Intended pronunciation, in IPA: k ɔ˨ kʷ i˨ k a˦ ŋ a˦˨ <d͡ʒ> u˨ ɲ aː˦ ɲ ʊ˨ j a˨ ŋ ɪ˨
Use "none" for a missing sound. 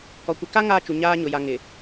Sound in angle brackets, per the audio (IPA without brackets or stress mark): t͡ʃ